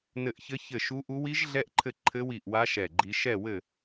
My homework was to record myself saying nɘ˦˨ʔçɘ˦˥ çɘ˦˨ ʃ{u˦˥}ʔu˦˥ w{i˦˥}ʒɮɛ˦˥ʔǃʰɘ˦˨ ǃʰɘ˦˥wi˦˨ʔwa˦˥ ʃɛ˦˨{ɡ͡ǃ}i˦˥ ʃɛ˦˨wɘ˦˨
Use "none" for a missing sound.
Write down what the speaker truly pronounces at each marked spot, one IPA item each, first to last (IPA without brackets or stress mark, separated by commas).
u˦˥, i˦˥, ɡ͡ǃ